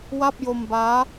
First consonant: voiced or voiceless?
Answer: voiced